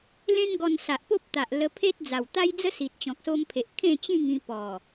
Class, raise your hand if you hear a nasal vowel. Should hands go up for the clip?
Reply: yes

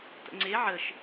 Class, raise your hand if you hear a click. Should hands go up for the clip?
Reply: yes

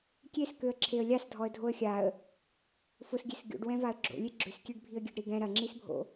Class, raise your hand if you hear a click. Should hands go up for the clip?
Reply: yes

